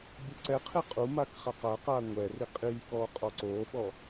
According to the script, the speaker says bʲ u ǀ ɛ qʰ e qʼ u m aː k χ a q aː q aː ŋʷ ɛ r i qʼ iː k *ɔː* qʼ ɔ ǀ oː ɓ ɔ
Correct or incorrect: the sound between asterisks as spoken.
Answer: correct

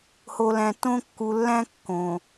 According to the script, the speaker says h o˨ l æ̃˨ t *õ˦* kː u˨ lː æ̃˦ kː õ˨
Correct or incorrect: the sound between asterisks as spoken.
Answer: correct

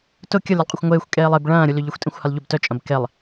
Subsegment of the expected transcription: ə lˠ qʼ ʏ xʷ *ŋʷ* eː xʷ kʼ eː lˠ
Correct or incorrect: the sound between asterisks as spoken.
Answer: correct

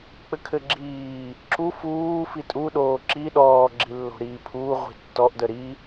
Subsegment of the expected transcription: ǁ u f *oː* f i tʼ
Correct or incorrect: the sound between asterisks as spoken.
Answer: incorrect: uː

